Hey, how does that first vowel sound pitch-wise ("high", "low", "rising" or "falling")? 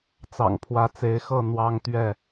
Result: low